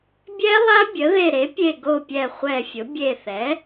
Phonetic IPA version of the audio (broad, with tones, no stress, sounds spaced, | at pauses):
bʲ ɛ˦˥ lˠ a˦˥ bʲ ə˩˥ ð e˧˩ ɾ e˩˥ pʲ e˧˩ ɡ o˧˩ pʲ ɛ˧˩ χʷ ɛ˧˩ fʲ ʊ˩˥ bʲ e˧˩ θ ɛ˩˥